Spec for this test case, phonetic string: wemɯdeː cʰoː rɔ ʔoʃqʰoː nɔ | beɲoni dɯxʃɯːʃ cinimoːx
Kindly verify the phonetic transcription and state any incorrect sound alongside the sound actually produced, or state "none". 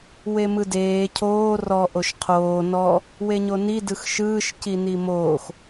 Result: b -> w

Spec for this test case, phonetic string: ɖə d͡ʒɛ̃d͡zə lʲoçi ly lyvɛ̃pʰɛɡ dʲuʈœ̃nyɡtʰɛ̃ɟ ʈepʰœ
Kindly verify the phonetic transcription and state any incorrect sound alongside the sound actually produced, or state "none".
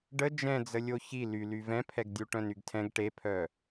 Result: ɟ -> ɡ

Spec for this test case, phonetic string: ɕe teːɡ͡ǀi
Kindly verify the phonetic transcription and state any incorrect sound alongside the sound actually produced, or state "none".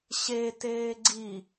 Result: none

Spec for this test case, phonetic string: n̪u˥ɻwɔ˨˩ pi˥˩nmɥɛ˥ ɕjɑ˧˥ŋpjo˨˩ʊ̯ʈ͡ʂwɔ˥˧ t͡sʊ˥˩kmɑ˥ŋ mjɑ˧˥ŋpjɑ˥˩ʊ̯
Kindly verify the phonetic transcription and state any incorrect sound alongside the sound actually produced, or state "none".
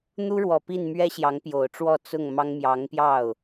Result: k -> ŋ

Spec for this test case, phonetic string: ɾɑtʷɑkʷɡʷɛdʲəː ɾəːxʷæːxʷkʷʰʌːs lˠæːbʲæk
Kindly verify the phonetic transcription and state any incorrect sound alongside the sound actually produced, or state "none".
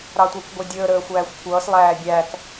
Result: none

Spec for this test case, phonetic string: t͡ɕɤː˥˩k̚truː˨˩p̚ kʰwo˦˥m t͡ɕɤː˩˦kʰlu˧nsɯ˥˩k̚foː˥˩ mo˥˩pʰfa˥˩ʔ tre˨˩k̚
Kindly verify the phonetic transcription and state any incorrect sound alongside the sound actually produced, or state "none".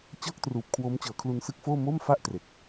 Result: pʰ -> m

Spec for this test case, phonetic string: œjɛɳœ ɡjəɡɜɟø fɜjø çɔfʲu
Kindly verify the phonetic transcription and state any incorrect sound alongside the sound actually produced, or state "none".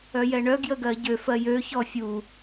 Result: none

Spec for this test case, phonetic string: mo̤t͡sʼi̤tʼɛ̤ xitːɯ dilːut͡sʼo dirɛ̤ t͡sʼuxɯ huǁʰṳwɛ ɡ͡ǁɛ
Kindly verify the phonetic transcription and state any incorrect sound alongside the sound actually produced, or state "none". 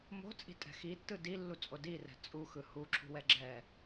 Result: none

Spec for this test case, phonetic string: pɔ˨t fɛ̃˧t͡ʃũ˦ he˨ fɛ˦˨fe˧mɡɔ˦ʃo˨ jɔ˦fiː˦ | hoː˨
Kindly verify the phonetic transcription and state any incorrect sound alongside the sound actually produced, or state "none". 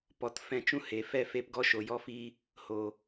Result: m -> p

